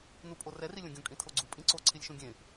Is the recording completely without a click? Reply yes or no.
no